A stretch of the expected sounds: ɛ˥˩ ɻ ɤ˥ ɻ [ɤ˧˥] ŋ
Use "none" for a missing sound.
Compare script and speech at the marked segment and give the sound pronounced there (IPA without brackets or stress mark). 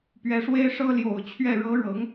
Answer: ɤ˧˥